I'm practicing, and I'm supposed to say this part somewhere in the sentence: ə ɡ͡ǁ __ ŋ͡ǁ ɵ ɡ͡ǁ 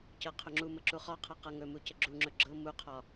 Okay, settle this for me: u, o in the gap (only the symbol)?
u